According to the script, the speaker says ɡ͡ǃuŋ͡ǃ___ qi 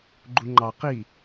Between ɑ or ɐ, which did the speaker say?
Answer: ɑ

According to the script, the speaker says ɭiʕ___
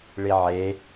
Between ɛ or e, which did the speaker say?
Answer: e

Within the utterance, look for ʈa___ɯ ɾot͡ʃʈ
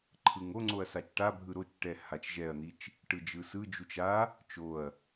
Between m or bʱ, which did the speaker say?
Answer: bʱ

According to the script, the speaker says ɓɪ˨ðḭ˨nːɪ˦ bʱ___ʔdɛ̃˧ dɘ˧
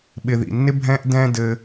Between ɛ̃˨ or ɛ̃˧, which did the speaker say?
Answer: ɛ̃˧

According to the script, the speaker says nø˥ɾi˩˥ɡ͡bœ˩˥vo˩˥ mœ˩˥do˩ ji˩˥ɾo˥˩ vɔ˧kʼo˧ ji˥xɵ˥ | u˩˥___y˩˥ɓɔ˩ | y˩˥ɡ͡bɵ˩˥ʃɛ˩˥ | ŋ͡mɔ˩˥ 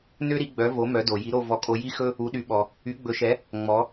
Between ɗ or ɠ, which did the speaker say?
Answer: ɗ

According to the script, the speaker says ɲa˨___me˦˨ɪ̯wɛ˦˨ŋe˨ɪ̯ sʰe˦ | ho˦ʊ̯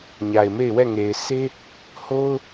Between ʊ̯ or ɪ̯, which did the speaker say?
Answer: ɪ̯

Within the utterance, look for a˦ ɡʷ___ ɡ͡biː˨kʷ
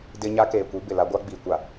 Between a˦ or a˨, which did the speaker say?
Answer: a˦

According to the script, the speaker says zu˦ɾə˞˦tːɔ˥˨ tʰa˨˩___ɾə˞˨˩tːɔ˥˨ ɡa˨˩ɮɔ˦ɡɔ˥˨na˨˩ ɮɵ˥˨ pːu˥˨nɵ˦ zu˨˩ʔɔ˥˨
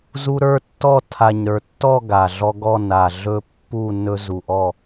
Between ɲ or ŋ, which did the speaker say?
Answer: ɲ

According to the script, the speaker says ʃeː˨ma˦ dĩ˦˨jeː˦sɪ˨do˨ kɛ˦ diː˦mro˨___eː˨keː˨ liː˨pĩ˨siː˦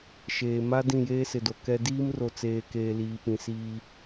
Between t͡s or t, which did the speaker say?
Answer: t͡s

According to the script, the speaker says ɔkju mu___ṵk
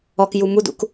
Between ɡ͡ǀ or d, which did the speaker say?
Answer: d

